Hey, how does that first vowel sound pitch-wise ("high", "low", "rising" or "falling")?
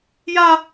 high